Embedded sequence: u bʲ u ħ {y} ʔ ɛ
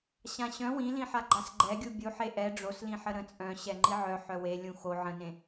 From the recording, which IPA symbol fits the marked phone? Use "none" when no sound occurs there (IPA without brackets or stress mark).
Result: e